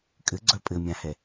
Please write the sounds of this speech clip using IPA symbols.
kʼ ɘ ɡ͡ǀ œ pʼ ɘ mʲ ã h ɛ

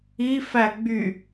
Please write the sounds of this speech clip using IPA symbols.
i f æ ɡ͡b y

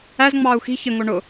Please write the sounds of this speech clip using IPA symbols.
æ z ŋ͡m ɑː u̯ x i̤ ç ə ŋ o ɳ ʊ

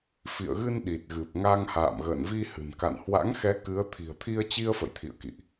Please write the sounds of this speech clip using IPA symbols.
f ḭ˧˨ ə̯ ɣ ɨ˧ n ɗ i˨˩ t̚ ɣ ɨ˨˩ p̚ ŋ a˧ ŋ h a̰ː˧˨ m ɣ ə̰ː˧˨ n v i˧ h ɨ̤˨˩ n k a̰˧˨ n h w a̰˧˥ ŋ x ɛ˨˦ k ɨ˨˦ ə̯ t̪ʰ i̤˨˩ ə̯ t̪ʰ i˧ ə̯ t͡ɕ i˧ ə̯ f ə̰˧˨ j t̪ʰ ḭ˧˨ ə̯ k ḭ˧˨ ʔ

